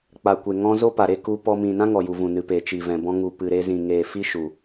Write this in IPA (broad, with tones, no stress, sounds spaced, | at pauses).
k͡p a˨ kʷ e˨ ŋ ɔ̃˧ z o˦ p a˨ ɾ e˧ k u˧ p ɔ˧ m ĩ˨ n ã˦ ŋ ɔ˨ j u˨ v ũ˨ n ɨ˨ p e˨ t͡ʃ i˨ v ɛ̃˨ b ɔ̃˧ ŋ u˨ p ɨ˨ ɾ e˧ z ĩ˨ ŋ eː˨ f i˦ ʃ u˨